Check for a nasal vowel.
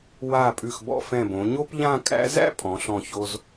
present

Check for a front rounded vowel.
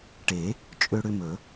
present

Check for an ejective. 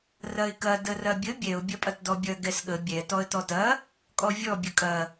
present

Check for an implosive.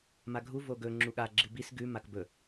present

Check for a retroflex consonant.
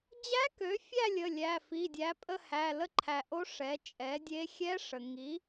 present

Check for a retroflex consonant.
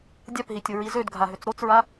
absent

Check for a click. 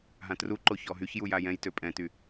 present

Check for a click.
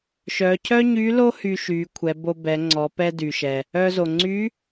present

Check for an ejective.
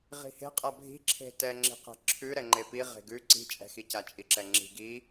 present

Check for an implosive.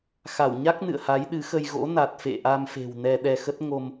present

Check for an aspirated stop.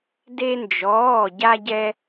absent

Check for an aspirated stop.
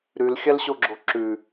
absent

